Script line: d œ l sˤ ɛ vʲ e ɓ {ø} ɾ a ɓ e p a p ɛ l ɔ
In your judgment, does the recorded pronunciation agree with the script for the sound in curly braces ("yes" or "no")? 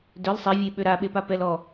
yes